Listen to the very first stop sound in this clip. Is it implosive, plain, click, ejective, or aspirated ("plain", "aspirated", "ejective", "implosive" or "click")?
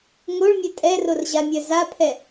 ejective